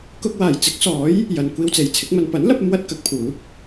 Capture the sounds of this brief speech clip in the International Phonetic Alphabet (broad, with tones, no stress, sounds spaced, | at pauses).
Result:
k ʊ˧ k̚ w aː˨˩ j t͡s ɪ˨˥ k̚ s ɔː˨˥ j | j ɐ˨ n kʷ iː˧ w t͡s e˨ j t͡sʰ ɪ˨˥ k̚ m ɐ˧ n p ɐ˨˥ n l ɐ˧ p̚ ɐ˧ m w ɐ˧ t̚ k ɐ˨˥ k̚ pʰ uː˨˥ p̚